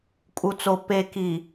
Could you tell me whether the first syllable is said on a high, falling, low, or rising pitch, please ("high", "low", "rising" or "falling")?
low